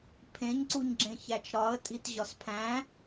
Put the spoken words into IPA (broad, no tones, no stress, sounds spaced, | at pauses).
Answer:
pʰ ẽ ɲ ǀ u ɲ ɡ͡ǁ ẽ ç æ t͡ʃ ɾ ɒ ə̯ tʼ i t ʑ ɒ s pʰ æ̃